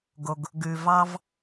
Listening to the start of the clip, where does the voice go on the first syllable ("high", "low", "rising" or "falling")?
low